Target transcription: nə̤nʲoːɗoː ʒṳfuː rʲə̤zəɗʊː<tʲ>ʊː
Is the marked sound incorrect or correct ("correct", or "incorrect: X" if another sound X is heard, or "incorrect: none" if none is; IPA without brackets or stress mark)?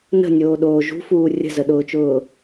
incorrect: t͡ʃ